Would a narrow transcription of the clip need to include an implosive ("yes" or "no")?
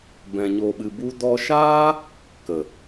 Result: yes